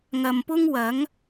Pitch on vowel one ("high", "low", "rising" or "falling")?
low